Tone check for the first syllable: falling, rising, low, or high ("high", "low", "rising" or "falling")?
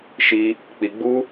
high